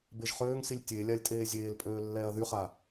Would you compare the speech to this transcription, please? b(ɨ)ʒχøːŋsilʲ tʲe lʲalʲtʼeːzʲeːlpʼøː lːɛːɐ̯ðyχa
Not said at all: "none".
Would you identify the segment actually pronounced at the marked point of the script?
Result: e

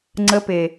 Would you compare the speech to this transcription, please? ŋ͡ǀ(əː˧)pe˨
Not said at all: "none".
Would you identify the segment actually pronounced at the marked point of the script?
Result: ə˧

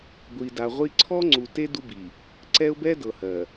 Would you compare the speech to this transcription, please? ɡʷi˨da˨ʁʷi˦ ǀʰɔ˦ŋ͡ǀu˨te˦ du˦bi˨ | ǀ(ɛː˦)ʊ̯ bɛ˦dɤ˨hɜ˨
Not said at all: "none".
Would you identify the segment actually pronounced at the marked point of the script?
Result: ɛ˦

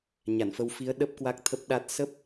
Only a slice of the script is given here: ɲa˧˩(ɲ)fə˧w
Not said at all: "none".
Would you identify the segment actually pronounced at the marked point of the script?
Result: n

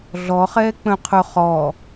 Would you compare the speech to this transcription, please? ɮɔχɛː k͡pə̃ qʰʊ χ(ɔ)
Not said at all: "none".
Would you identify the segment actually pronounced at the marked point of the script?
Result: ɔ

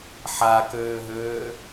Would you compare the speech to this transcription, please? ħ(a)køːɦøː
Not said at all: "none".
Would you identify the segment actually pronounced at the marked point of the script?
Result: a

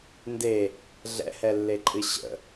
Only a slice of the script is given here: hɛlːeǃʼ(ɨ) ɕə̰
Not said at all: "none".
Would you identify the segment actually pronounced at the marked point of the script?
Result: ɨ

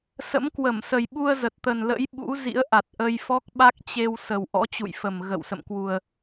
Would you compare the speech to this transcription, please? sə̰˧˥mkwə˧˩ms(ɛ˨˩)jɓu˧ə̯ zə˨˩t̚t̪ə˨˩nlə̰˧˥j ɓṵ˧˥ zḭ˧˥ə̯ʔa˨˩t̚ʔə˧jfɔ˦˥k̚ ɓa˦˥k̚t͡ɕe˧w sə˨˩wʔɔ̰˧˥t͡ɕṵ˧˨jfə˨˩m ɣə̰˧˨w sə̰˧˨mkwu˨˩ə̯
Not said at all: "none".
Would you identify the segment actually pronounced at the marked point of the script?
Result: ə˨˩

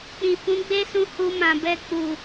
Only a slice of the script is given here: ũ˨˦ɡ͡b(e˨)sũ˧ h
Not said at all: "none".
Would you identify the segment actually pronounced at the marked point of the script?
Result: e˦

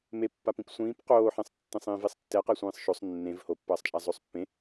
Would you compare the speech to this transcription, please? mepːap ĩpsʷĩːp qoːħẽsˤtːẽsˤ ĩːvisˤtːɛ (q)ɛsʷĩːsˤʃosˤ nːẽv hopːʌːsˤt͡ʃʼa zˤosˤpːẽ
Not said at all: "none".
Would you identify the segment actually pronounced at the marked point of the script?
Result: q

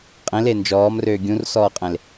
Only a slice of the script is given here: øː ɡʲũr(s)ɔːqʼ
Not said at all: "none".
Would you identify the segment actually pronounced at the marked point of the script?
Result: s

